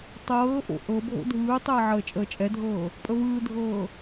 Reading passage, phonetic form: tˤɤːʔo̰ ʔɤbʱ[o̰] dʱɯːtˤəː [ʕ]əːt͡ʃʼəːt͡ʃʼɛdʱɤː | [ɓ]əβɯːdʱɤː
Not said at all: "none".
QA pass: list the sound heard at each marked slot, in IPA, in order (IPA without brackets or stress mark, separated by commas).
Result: o̰, ʕ, pʼ